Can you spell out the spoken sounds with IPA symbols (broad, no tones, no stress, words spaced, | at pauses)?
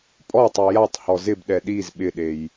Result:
pʼɔtˤy jatˤhɔ zɪbɗɛ ɗiz ɓɪɗej